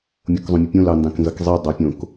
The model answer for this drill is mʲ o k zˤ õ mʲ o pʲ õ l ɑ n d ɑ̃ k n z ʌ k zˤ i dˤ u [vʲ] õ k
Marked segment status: incorrect: pʲ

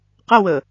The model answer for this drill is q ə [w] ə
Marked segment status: correct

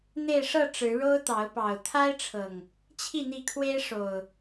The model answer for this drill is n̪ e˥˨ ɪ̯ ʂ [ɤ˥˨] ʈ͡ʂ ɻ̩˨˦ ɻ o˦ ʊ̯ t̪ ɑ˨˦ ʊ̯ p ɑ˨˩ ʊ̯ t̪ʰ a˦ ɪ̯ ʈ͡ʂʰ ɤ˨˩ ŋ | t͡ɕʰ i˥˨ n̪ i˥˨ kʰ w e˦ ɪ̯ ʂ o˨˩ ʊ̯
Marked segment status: correct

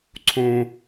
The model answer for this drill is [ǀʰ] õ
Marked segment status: correct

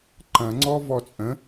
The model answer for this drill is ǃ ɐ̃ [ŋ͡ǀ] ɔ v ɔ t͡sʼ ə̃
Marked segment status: correct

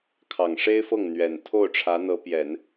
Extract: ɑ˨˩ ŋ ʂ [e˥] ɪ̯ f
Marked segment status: correct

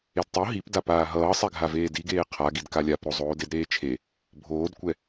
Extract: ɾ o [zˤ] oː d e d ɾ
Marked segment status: correct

